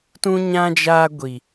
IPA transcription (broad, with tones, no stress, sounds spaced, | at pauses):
t ũ˦ ɲ ã˦ d͡ʒ aː˦ ɡʷ i˦